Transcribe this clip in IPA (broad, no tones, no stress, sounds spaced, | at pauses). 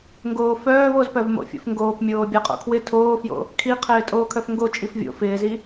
ŋ ɡ oː f œː v o z p œ v m o̰ fʲ o̰ f ŋ ɡ oː p mʲ oː bʲ a qʼ o̰ kʰ w ɪ tʰ oː f j o̰ | kʰ i qʰ ɪː tʼ oː kʰ œ f ŋ ɡ o t͡ʃʼ i f vʲ o̰ f ɪː z i